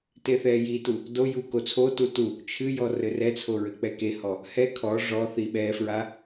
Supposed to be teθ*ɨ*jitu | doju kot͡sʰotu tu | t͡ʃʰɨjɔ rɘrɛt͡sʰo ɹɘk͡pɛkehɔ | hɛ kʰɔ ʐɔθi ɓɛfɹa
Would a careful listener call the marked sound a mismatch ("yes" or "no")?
yes